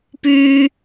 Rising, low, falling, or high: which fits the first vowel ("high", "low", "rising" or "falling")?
high